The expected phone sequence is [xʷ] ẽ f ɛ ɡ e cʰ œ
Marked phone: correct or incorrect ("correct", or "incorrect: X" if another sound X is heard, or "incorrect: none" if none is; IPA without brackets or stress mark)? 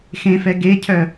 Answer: incorrect: x